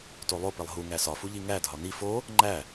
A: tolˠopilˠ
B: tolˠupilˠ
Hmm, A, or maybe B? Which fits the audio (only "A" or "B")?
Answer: A